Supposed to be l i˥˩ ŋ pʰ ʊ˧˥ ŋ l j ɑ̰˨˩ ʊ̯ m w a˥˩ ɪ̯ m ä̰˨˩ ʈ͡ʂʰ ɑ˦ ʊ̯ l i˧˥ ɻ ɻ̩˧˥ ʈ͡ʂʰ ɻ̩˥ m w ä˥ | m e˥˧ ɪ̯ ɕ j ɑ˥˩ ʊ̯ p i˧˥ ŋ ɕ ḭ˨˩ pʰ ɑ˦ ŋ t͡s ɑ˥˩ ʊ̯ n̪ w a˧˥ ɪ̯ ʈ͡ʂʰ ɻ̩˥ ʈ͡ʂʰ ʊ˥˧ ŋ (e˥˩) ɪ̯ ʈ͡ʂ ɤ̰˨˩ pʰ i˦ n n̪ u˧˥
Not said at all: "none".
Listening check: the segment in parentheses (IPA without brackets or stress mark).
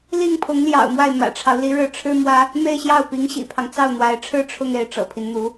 e˥˩